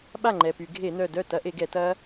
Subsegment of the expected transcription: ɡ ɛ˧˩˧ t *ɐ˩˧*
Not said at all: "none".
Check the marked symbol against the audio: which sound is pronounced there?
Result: ɐ˦˥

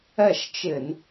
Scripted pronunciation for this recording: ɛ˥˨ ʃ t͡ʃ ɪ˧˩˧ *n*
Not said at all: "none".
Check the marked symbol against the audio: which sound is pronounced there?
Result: n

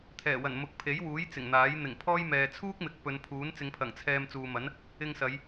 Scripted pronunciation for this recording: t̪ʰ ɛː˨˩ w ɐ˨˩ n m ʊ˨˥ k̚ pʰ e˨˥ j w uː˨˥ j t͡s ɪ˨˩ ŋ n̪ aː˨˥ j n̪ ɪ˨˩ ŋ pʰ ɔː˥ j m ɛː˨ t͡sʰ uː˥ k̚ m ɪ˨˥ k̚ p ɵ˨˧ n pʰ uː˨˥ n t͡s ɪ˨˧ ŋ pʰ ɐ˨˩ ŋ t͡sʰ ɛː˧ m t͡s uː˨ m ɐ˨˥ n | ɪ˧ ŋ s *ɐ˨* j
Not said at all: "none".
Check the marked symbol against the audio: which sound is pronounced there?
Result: ɐ˨˧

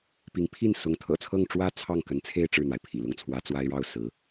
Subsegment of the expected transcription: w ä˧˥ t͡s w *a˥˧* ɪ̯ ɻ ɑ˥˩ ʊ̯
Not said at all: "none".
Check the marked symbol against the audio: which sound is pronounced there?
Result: a˥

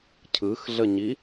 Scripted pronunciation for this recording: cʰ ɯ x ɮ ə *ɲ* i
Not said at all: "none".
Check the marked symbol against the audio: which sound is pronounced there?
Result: ɲ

